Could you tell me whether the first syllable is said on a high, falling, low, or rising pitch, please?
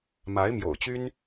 rising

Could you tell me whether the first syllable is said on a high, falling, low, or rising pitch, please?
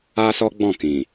high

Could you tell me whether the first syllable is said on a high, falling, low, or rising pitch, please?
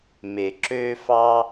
low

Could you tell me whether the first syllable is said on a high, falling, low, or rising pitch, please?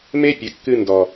high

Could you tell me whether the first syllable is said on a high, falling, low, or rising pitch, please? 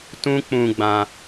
high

